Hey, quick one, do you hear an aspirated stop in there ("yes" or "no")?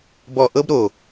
no